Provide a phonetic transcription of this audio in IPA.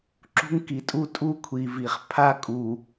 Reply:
ǁ ṳ˦ ŋ k i˨ tʼ u˦ tʼ u˦ kʷʰ i˨ v i˨ χ pʰ a˦ kʼ u˨

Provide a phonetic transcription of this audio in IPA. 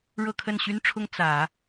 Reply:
ɻ ɤ˥˧ kʰ ə˥˩ n ɕ y˥ n ʈ͡ʂʰ ʊ˥ ŋ t͡s ä˨˩˦

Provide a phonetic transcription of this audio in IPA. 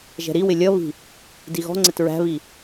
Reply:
ʒ ɛ̤ ɾ i w ɪ lʲ ʌ β i̤ | d i ɣ ɔ̤ ŋ͡ǀ ɪ t ɹ æ̤ β i

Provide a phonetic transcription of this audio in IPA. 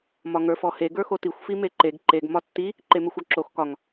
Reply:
m ɒ ŋ ə˞ f ɔ h e ɡ ə˞ x o t i xʷ f i m e ǃ e ɡ ǃ e ɡ m ɒ tː i | ǃ e m e xʷ ɒ ǁ o x k ɒ ŋ

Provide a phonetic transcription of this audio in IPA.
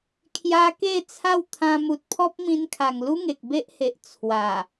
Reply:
kʰ j a˧ k e˥˧ t͡sʰ a˥˧ w t̪ʰ ã˧ m u˨ t̚ pʰ ɔ˦ p̚ m ĩ˧ n kʰ a˨˩ ŋ l u˦ ŋ e˨ k̚ b e˦ ʔ h e˨ ʔ t͡sʰ w a˨˩

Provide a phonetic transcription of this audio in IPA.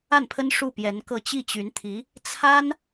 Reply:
a˥˩ n pʰ ə˥ n ʂ u˥˩ p j ɛ˧˥ n k ɤ˥˧ t͡ɕ i˥˩ t͡ɕ y˧˥ n t̪ʰ i˧˥ | t͡sʰ a˥ n

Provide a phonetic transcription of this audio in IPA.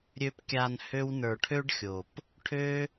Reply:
ɾʲ ø˧ p kʲ a˧ n h ø˦ w n ə˞˧ ʈʰ ø˦ ɖ xʲ o˨ p | ʈʰ ø˦

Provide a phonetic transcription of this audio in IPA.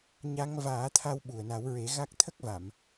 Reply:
ɲ a˧˥ ŋ v aː˨˩˦ t̪ʰ a˧ w ɓ u˨˩ ə̯ n a˨˩˦ w ɹ e˨˩˦ ɣ a˦˥ k̚ t̪ʰ ə˦˥ k̚ v a˨˩˨ m

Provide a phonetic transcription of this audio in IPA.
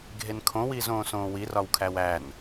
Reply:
ɡʱ e n kʰ õ w iː z õː s õː w i r ɒ w kʰ æ w æ n

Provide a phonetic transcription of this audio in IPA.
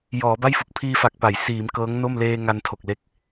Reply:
j ɔː˩˦ b a˥˩ j f u˨˩ k̚ pʰ iː˧ f a˨˩ k̚ p a˩˦ j s iː˩˦ m k ɤː˦˥ ŋ n o˥˩ m l eː˧ ŋ a˧ n tʰ o˨˩ k̚ l e˦˥ k̚

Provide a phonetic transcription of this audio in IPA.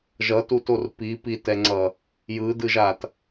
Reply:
ʒ ʌ t u t o r p i p i t ɛ ŋ͡ǀ ʌ | j ɯ d ɯ ʒ a t

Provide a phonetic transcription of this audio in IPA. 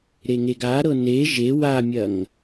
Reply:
ɾ e ŋ e ɡ a ɾ ɤ n e ʒ e w a mʲ ɐ ŋ

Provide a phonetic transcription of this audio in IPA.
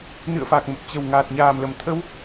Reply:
n ɨ̰˧˨ ə̯ f a˨˩ k̚ m ə˨˩ p̚ t͡ɕ ə˨˩ w ŋ aː˨˩ t̚ ɲ aː˨˩ m l ə˨˩ m t̪ʰ ə˧ w

